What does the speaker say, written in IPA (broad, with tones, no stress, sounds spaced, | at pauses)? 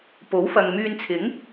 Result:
p o˨˥ w f ɐ˨ ŋ m yː˧ n t͡sʰ ɪ˨˥ ŋ